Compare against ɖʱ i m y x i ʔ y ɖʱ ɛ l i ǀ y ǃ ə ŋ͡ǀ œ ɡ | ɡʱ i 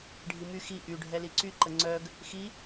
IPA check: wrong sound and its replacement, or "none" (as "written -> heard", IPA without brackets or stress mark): ɡʱ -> x